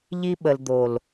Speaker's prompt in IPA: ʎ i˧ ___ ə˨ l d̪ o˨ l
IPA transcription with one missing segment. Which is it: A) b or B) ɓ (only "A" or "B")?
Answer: B